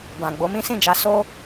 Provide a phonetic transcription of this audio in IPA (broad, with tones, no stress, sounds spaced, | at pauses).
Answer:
b ã˨ ɡ͡b o˨˦ m ĩ˦ s ĩ˦˨ d͡ʒ a˨˦ s o˦